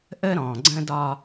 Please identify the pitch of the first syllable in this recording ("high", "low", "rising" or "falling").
high